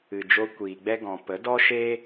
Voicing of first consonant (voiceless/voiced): voiced